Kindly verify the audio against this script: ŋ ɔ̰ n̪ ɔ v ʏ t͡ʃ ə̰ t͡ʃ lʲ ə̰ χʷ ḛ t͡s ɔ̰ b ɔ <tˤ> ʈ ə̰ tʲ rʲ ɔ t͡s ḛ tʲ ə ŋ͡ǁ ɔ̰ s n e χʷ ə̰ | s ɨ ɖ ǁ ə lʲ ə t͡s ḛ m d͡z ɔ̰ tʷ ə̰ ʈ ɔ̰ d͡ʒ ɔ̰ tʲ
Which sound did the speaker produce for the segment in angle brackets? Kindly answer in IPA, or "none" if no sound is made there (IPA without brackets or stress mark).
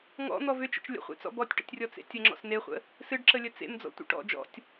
tʲ